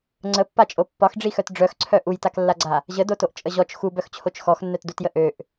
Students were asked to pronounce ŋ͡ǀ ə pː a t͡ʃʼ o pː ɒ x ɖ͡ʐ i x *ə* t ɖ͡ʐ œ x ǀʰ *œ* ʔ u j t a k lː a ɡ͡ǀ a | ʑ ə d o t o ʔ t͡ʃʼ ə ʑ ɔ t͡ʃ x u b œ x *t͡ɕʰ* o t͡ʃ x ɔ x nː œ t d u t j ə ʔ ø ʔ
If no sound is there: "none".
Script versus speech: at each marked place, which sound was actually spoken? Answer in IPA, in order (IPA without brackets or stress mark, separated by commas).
œ, œ, t͡ɕʰ